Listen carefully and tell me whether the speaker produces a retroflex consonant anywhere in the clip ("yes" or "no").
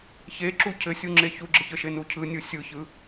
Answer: no